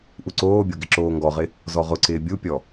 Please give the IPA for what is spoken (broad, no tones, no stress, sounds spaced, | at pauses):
ʔ u ǀ oː bʲ o ɡ ɪ ǁ oː ŋ ɡ ɔ ʁ ɪ | z ɔ ʁ ʊ ǀ ɪː bʲ u pʲ ɔ